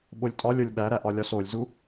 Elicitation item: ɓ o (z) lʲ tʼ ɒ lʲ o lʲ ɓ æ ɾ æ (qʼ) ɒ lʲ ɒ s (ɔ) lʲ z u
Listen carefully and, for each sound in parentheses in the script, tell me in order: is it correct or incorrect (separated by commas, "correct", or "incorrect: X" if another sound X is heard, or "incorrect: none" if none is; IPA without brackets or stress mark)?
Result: incorrect: none, incorrect: ʔ, incorrect: o